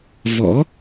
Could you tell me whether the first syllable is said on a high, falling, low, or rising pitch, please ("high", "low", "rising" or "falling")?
rising